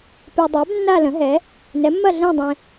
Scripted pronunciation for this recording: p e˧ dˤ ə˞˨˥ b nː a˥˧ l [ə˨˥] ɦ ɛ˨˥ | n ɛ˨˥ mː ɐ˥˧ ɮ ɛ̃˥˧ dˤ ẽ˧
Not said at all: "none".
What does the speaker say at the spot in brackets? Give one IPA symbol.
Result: ə̃˨˥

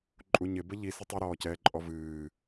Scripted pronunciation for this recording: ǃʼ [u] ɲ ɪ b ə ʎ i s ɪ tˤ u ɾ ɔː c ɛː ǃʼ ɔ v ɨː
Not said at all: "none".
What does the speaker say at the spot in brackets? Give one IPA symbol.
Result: u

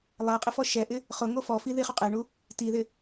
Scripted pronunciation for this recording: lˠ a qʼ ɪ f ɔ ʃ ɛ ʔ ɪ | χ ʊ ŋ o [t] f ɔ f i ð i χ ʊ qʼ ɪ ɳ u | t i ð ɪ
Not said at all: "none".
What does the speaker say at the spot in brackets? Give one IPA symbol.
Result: none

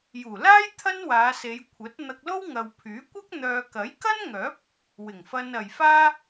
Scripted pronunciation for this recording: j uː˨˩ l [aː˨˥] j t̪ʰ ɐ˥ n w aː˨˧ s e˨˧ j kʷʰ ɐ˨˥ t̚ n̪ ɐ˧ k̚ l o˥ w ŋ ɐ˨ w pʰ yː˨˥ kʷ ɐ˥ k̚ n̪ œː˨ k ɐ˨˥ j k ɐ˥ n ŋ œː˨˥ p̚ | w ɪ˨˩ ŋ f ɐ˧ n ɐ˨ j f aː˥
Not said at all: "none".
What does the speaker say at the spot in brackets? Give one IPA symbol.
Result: aː˥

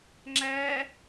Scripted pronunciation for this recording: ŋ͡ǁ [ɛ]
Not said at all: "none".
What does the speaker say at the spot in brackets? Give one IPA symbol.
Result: æ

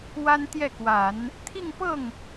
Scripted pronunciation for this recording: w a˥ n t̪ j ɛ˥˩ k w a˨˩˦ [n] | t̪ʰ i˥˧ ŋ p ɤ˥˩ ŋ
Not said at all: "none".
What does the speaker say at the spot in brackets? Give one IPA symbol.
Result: n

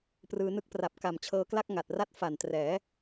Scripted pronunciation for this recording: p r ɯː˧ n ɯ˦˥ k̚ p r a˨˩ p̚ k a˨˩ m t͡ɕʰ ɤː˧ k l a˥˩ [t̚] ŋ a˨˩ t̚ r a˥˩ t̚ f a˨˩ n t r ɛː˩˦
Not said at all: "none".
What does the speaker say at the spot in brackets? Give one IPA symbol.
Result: k̚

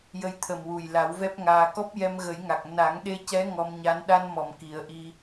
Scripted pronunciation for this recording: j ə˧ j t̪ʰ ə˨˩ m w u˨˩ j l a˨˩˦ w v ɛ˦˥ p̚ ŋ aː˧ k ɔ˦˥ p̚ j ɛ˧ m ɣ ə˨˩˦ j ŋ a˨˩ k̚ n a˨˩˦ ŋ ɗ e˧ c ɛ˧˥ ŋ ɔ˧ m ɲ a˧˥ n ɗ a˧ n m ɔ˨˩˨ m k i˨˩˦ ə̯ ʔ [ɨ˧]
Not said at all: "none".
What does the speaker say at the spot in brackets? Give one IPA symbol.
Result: i˧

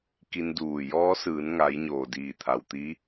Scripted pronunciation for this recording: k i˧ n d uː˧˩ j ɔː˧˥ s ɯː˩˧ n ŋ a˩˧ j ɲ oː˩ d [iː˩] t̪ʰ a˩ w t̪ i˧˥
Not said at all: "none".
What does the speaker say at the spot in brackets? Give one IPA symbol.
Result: iː˧˩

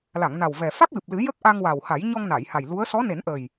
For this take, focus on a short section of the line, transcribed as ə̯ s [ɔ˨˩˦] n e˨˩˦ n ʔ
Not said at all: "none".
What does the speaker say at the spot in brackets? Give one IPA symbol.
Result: ɔ˧˥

